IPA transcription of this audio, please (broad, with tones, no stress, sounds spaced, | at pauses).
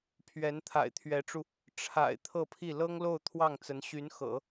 pʰ ɥ ɛ˧˥ n t̪ʰ a̰˨˩ ɪ̯ t̪ʰ ɥ ɛ˧˥ ʈ͡ʂ u˧ | ʈ͡ʂʰ a̰˨˩ ɪ̯ t̪ʰ ɤ˥˧ pʰ i˥˩ l ɤ˥ ŋ l o˥˧ ʊ̯ t̪ʰ w ɑ˥˩ ŋ t͡s ə˧˥ n ɕ y˧˥ n x ɤ̰˨˩˦